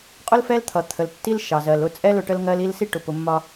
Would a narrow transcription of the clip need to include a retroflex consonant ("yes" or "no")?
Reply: yes